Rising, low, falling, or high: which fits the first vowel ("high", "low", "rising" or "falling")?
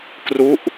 falling